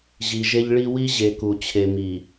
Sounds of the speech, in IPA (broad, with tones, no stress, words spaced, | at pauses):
ʑi˨ʒe˦ʎɭi˦ wi˦ʑe˨ku˨ t͡ɕʰe˨mi˨